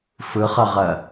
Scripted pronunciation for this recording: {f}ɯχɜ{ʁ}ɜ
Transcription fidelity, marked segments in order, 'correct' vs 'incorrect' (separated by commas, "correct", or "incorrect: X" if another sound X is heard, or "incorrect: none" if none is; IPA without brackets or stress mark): correct, correct